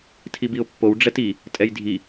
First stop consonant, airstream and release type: aspirated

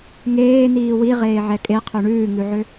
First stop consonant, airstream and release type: ejective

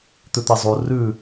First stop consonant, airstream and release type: plain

